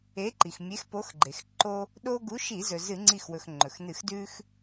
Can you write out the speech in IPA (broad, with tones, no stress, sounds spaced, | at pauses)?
e˨˥ ǃ i˩ x mʲ e˨˥ x p o˨˥ x ɡ͡ǃ e˩ x ǃ o˦ | ɗ o˦ ɡ u˨˥ ʃ i˧˩˧ z ɵ˩ z ɨ˧˩˧ ŋ͡ǀ i˧˩ x w ɵ˩ x ŋ͡ǃ ɵ˩ x n ɨ˧˩˧ x d ʉ˦ x